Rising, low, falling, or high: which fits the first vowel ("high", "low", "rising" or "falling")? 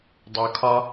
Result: low